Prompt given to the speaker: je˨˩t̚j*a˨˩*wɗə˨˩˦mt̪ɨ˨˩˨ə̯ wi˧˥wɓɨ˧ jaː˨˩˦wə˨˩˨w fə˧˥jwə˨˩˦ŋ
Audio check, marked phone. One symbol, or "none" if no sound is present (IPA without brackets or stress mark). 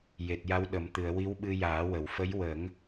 a˧˥